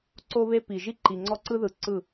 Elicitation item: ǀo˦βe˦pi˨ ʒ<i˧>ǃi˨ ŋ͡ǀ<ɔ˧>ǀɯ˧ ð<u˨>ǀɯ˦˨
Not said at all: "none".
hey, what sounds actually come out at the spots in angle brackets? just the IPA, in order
i˦, ɔ˧, ɯ˨

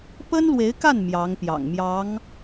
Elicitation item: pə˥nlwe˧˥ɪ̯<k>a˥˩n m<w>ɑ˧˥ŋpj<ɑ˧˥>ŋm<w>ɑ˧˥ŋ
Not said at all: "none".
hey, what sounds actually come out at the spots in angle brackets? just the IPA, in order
k, j, ɑ̰˨˩, j

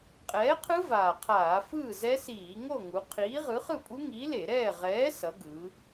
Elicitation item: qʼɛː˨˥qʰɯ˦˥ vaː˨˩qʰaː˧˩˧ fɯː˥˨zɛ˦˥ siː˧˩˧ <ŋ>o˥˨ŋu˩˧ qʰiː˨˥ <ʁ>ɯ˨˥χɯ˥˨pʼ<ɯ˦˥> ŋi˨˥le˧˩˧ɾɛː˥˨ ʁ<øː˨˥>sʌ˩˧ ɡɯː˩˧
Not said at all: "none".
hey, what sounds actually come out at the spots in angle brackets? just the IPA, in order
ŋ, ʁ, u˦˥, ɛː˨˥

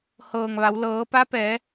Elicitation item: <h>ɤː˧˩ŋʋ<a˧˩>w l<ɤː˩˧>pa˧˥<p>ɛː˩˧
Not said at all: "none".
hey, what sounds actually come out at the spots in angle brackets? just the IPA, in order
h, a˩˧, ɤː˩˧, p

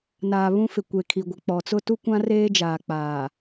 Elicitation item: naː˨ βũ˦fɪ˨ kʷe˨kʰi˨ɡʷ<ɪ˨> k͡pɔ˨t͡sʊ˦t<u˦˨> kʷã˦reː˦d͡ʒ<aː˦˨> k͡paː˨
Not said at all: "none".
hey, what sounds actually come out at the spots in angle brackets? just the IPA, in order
ɪ˨, u˦, aː˨

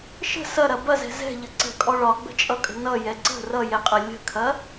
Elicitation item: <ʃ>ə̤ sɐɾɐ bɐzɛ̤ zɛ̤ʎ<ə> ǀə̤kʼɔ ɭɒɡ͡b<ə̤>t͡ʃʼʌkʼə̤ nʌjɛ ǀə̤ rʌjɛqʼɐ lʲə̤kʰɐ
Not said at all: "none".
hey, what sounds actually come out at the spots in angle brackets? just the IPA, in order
ʃ, ə, ə̤

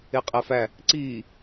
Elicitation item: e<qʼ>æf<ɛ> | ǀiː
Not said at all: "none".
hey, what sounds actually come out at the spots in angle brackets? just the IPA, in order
qʼ, æ

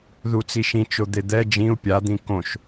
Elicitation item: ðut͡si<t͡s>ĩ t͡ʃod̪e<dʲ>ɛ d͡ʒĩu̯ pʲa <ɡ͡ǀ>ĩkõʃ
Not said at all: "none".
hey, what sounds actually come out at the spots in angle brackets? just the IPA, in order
ʃ, d̪, d̪

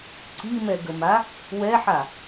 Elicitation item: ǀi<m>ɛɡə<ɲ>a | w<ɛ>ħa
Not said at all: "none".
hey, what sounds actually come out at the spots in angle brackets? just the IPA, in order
m, m, ɛ

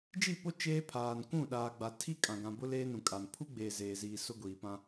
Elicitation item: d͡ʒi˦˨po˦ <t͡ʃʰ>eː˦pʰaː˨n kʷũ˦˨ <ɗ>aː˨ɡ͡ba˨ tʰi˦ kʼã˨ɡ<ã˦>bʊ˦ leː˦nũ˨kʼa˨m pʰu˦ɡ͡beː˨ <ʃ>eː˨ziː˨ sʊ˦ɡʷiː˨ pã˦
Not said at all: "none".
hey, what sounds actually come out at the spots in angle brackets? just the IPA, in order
t͡ʃ, ɗ, ã˨, z

